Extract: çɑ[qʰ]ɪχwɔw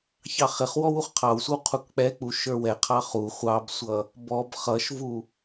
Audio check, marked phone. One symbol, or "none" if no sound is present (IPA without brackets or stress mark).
χ